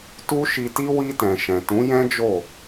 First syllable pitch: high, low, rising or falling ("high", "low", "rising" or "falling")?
high